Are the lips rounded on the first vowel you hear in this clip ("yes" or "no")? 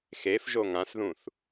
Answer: no